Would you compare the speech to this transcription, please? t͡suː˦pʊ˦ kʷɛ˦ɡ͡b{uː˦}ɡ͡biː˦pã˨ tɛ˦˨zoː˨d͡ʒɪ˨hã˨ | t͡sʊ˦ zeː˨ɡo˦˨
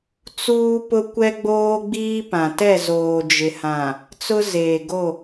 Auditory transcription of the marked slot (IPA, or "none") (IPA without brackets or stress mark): oː˦